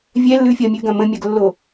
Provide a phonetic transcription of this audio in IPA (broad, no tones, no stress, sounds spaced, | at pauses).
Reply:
vʲ ɛ lː ʉ fʲ ɐ mʲ ʉ ɡ ɐ̃ m ə̃ mʲ ɐ ɡ lː o